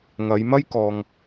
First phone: ŋ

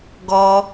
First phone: ɡ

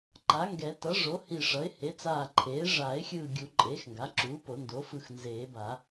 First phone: ǃ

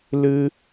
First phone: l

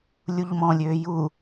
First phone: lʲ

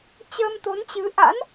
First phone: t͡ɕ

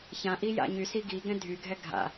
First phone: ç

